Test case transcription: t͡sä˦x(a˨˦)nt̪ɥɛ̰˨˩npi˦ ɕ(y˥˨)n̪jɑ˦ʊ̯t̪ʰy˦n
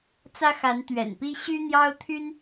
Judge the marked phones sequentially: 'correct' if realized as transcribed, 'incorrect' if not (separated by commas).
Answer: correct, incorrect